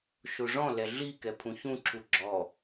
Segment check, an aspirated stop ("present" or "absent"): present